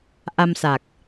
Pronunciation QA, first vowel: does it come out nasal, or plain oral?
oral